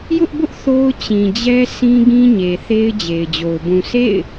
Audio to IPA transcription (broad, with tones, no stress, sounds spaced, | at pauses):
j ʊ˦ ʔ b ʊ˦ ʔ θ o˦ ʊ̯ t͡ɕ ĩ˨ d͡ʑ ɛ˦ sʰ ĩ˦ ɡ ĩ˦ ɲ e˨ θ e˦ ɪ̯ d͡ʑ e˨ ɪ̯ d͡ʑ o˨ ʊ̯ b ũ˨ s ḛ˦˨ ɪ̯